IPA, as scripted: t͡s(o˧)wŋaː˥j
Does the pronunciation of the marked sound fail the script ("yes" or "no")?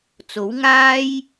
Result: yes